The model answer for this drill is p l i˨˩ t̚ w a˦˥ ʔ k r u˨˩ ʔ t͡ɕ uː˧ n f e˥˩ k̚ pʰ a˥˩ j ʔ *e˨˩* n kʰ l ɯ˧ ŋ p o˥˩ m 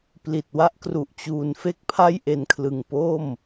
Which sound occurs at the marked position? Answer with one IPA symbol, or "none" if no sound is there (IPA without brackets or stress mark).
e˧